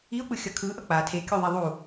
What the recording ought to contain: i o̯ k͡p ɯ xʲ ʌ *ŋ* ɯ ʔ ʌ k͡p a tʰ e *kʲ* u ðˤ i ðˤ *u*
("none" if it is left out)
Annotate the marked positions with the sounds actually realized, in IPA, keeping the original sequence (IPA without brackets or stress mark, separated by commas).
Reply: kʰ, kʲ, u